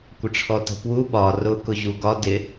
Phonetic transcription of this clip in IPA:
kʷ ə ʈ͡ʂʰ ɔ t ə̤ p w u ɓ ɒ r ʊ k ʊ ʑ u ɡ ɒ d ɪ

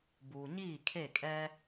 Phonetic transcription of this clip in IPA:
b uː˨ ɲ iː˦˨ kʰ e˦˨ kʼ ɛ˦

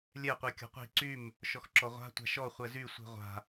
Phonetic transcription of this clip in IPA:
lʲ ɛ qʷ i kʲ ɔ̤ qʷ i̤ ǀ y m | ʃ ɔ x ǁ ɔ ʁʷ a̤ tʷ a̤ ʃ ɔ χʷ ɛ z y sʷ i̤ ʁʷ a̤

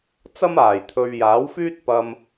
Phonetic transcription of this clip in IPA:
t͡s ɐ˥ m aː˨˩ j t̪ʰ ɵ˨ ɥ j aː˨˥ w f yː˥ t̚ p ɐ˧ m

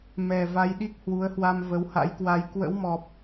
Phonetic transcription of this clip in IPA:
m ɛ˨˩ v a˧ j ɗ i˦˥ k̚ h w u˨˦ ə̯ h w a˧ m v ə˨˦ w h a̰˧˥ j k w a˧ j k w ə̰˧˥ w m ɔ˨˩ p̚

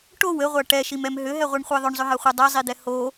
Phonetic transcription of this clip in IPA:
ʈ o w ɘ ʁʷ a ʈ ɛ ʃ i m ɛ m ɦ ʏ ɦ ɛ ʁʷ i ɳ χʷ e ðˤ ʏ ɳ zˤ ʏ ɦ a χʷ e dˤ ɛ zˤ i d̪ ɛ h o

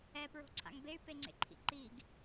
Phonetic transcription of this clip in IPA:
ɛ p ɹ o̤ ǀʰ a̰ ŋ b e y̯ p e ŋ͡ǀ ḛ ǃʰ ḭ ǃ i ɡ

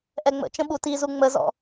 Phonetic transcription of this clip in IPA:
ʔ ɛ ŋ͡m ə̰ t͡ʃ ə̃ ɓ u t i z u ŋ͡m ə z ɔ̰

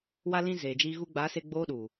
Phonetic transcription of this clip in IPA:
w a˧ l ĩ˧ z eː˨ d͡ʒ iː˧ ɣ u˧ ɡ͡b aː˨˦ s e˧ ɡ͡b oː˧ ɗ u˨

